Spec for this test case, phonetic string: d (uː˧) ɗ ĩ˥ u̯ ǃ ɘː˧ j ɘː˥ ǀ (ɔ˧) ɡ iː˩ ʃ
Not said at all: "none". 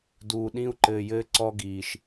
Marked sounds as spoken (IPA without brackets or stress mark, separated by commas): uː˧, ɔ˧